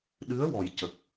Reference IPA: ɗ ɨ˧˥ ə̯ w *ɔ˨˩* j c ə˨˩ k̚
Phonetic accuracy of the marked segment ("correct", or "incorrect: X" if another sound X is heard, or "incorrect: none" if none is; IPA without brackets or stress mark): correct